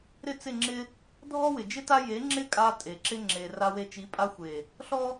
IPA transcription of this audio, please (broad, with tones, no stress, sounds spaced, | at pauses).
ɾ ɪ˦˨ t͡s ɪ˦˨ ŋ͡ǁ ɪ˦ | dʱ ɔ˦ w ɪ˨ d͡ʒ ɪ˦ t a˦ j e˨˦ ŋ͡ǁ ɪ˦ kʼ a˧ tʼ e˨ ǁ ɪ˦ ŋ͡ǁ e˨ r a˧ w e˧ t͡ʃ i˨˦ pʼ a˧ xʷ e˨ | ɬ ɔ˦